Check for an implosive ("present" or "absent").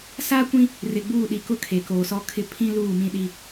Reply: present